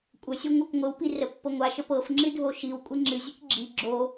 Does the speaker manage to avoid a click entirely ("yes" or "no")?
no